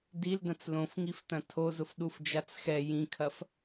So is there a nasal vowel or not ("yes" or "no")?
yes